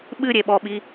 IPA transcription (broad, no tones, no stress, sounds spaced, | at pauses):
ɓ ɨ ɾʲ e ɓ ɔ ɓ i